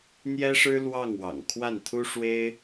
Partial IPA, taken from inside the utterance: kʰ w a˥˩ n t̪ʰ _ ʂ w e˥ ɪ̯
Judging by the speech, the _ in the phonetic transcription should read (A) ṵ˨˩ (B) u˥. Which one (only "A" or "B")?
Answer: B